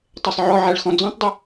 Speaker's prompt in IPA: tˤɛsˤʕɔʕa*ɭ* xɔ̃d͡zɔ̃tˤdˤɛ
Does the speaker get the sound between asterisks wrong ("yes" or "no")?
no